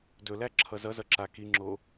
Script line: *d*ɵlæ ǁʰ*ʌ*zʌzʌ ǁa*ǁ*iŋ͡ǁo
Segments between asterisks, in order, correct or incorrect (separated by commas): correct, correct, incorrect